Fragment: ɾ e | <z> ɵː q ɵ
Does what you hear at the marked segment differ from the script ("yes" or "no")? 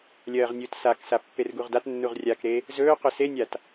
no